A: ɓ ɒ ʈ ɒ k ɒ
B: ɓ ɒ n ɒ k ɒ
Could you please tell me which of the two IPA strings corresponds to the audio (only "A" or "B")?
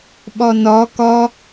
B